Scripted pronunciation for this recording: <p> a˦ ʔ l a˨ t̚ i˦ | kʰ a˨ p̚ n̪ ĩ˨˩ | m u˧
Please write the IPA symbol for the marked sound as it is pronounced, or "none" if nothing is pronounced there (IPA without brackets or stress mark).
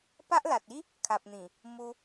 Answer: p